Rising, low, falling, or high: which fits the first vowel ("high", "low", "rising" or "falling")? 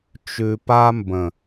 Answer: low